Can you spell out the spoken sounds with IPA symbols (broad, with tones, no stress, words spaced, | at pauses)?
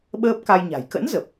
ɓəː˦˥p̚ka˧jɲa̤˨˩j kə̰˧˥n zə˨˩p̚